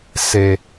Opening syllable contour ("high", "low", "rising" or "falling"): low